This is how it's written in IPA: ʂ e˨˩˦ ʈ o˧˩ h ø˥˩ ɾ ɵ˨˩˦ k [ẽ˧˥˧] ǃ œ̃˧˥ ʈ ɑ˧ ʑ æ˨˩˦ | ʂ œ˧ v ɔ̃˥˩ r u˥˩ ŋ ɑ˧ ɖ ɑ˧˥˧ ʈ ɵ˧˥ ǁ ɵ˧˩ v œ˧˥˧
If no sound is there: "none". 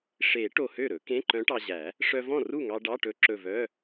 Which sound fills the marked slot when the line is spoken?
ẽ˧˥˧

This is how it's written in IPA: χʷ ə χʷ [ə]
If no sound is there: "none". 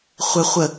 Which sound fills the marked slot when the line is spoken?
ə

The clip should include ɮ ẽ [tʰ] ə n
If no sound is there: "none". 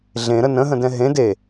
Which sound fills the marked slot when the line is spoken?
ɾ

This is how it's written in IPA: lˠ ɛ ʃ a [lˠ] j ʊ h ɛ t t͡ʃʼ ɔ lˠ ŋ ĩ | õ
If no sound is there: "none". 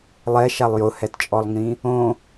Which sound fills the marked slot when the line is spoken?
lˠ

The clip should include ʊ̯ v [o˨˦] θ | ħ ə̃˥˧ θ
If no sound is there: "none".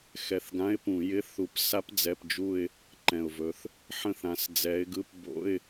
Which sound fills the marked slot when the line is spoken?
ɵ˨˦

